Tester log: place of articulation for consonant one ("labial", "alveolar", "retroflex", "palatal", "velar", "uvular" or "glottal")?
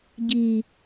palatal